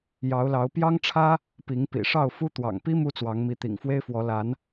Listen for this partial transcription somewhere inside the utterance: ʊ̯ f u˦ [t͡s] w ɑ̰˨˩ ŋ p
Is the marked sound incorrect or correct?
incorrect